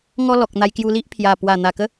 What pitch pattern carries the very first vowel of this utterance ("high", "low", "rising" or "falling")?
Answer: high